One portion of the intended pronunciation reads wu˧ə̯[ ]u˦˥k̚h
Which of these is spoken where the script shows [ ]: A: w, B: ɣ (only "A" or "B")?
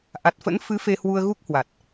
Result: B